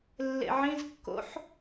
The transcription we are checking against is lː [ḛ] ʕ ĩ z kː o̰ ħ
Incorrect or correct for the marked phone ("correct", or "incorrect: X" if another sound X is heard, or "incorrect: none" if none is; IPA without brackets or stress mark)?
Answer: correct